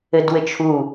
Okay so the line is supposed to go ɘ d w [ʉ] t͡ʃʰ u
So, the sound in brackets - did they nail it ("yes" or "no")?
no